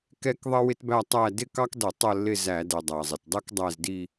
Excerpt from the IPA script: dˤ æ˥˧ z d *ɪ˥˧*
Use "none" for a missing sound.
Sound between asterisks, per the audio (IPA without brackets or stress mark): i˥˧